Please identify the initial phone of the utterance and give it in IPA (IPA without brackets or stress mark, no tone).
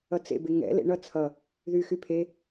ʌ